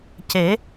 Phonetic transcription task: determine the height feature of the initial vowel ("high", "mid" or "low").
mid